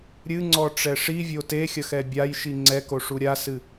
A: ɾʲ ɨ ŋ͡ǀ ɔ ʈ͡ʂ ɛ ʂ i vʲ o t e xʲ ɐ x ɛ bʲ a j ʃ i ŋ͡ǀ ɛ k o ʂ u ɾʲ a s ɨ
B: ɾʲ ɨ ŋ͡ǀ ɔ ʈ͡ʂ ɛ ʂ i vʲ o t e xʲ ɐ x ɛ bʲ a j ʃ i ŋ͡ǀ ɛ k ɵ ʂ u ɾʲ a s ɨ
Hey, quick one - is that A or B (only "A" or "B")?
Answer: A